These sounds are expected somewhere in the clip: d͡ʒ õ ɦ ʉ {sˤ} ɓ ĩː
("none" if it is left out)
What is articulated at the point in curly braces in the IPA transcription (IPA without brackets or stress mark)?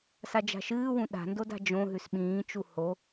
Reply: s